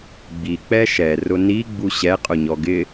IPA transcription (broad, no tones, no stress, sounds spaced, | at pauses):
ɡ͡b i k͡p ɛ ʃ ɛ r ʊ n i ɡ͡b u ɕ ɛ qʼ ʊ ɲ ɔ ɡ ɪ